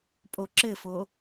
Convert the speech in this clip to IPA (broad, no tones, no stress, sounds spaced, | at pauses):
pʼ o ǁ ɘ f o